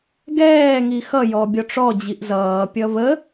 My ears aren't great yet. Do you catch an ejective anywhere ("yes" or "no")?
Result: no